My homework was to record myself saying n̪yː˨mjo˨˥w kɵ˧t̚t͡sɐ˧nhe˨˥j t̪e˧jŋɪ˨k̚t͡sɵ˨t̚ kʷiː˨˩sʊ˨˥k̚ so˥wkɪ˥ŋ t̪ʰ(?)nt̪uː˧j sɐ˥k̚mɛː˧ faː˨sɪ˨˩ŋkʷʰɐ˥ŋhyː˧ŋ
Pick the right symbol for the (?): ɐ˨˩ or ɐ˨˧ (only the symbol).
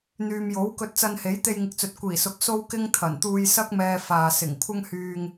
ɐ˨˩